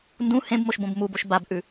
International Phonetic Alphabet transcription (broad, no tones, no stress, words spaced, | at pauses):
ndũ hẽbmoʃbõb muboʃ babʔʉ